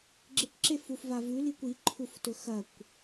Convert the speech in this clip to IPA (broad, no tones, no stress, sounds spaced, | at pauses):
ɡ͡ǁ ɨ kʷ ǁ e f u f v a v ʉ l i kʷ i ǃʰ u f t ɵ x ɐ kʷ